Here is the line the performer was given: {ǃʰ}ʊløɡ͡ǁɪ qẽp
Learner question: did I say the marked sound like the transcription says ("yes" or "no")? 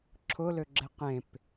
no